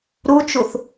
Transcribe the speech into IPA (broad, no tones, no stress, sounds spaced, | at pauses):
ɾ u t͡ʃ u θ